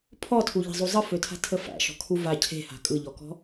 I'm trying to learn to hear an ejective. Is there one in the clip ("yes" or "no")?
yes